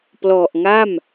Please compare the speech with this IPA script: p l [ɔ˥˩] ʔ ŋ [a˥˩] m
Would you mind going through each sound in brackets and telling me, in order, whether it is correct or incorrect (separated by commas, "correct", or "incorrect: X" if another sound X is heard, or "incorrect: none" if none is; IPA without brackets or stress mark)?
incorrect: ɔ˨˩, correct